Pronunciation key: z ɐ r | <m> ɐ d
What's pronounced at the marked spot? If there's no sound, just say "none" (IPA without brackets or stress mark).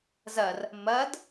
m